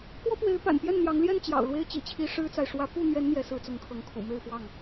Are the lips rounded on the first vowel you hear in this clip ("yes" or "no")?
yes